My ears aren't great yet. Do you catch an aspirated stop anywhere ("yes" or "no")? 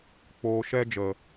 no